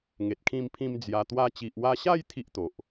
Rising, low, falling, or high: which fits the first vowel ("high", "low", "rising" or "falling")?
low